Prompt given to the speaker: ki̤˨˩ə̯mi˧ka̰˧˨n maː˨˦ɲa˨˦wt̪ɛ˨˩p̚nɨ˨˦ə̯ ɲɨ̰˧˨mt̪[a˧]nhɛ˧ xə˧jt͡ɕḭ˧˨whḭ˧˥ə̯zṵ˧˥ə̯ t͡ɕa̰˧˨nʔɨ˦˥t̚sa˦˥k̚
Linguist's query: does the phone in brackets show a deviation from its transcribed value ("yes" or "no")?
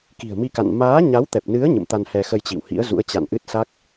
no